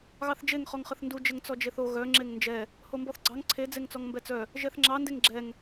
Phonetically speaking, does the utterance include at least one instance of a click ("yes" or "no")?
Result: yes